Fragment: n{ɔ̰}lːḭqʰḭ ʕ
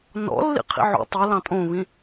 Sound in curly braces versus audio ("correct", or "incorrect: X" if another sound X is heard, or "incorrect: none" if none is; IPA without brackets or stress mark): correct